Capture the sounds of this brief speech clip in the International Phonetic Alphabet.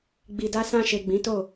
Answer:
ɡ͡bi˧da˦ sã˧ʃe˨ ɡ͡bĩ˨˦to˦˨

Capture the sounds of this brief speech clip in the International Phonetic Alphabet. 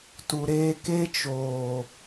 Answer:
tu˧ɾeː˦ ke˦t͡ʃoː˨

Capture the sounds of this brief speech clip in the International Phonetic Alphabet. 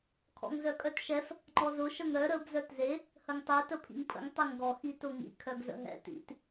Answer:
kʰɔ̰ŋzœkʼœtʃɛf | ŋ͡ǃɔzʊ ʃəŋɾœ ɾəb zœtze | həŋtˤe təpʰḭŋpʰə̰ŋ tˤeŋɡɔ xitʊŋḭ kʰœɡzə̰ɦɛ̰ tḭt

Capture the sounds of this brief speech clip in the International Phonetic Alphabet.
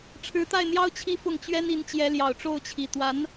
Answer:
ʈ͡ʂʰɻ̩˧˥t̪a˥˩ɪ̯n̪jɑ˥ʊ̯ t͡ɕʰi˥fʊ˥˩ŋ t͡ɕɥɛ˥ni˧˥nt͡ɕjɛ˧˥ljɑ˨˩ʊ̯ ʈ͡ʂo˥˩ʊ̯t͡ɕʰi˨˩t̪wa˧˥n

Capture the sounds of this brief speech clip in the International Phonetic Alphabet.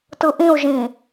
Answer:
tɯʔĩu̯ʒĩ

